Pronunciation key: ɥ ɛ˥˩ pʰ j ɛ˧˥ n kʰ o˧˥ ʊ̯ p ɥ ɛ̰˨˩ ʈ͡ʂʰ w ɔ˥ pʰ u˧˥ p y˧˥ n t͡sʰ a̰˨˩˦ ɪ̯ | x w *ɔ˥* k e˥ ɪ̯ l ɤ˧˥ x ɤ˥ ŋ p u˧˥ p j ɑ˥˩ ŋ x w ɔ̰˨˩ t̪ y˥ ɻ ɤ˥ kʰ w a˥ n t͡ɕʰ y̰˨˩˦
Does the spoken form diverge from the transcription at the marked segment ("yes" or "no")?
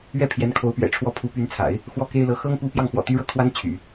no